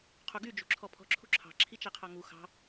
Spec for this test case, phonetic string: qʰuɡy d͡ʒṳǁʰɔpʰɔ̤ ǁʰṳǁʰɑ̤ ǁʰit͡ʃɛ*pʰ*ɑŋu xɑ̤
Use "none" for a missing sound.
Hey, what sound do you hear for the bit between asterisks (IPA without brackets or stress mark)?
qʰ